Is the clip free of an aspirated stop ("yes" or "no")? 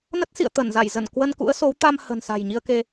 yes